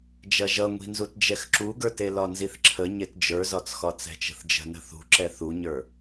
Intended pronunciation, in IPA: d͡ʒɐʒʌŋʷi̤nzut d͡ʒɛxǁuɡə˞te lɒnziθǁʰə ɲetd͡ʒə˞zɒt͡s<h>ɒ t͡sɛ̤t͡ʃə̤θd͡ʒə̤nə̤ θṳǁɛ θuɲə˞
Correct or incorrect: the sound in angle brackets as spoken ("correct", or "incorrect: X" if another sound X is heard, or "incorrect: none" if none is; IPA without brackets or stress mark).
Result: incorrect: x